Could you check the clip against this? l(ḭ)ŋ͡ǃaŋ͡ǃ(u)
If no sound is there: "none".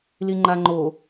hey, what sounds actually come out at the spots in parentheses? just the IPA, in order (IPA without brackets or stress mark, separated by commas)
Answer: i, o